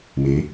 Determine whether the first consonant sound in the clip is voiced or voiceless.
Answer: voiced